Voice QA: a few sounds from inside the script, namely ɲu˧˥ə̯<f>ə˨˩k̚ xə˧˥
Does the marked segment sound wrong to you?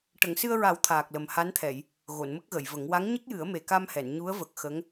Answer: yes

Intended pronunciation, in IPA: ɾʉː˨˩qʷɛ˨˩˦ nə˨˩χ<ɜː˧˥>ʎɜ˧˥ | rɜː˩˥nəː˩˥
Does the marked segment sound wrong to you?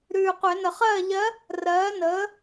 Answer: yes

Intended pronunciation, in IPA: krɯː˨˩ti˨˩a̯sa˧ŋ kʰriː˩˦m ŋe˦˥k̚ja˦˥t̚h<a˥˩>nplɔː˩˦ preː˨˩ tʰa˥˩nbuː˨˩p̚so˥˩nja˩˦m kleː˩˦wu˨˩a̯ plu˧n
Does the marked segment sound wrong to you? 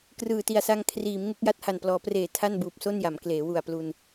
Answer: yes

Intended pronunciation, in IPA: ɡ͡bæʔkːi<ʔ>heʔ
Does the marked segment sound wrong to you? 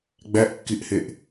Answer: no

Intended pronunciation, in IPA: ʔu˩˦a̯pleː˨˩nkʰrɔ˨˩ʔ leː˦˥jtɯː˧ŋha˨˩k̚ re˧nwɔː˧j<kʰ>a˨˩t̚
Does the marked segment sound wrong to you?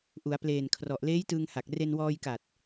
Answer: yes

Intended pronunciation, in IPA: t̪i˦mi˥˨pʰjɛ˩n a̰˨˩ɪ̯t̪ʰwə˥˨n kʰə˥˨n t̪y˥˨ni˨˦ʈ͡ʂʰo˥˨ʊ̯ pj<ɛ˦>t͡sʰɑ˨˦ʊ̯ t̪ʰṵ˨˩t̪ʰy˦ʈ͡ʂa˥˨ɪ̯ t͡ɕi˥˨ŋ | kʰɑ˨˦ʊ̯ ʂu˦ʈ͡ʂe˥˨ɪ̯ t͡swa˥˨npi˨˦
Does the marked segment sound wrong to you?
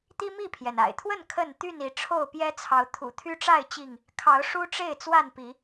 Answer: no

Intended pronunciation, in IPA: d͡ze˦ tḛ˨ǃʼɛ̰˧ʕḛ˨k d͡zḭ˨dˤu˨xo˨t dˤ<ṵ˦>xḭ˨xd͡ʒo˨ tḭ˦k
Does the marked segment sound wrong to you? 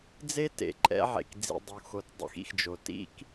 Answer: yes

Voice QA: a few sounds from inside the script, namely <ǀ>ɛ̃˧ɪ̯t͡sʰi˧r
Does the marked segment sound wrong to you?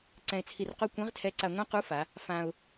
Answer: no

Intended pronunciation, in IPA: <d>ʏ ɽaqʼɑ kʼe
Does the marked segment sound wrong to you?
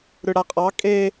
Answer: yes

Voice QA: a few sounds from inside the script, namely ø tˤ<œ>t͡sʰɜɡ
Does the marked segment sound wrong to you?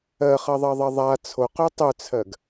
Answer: yes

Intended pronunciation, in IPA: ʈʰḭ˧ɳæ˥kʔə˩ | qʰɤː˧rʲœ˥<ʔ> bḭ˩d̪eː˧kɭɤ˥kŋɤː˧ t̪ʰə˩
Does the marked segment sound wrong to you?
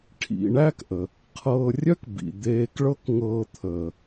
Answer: yes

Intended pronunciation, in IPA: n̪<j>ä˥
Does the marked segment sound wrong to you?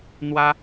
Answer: yes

